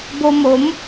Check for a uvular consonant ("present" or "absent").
absent